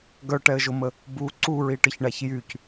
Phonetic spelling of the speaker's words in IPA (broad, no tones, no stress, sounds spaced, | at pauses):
ɡ œ ʈ ɛ ə̯ ʒ o m ə | b u ǀ u ɹ i ʈ ə ç ɳ a ç j y c